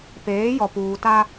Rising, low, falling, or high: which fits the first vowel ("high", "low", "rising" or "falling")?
rising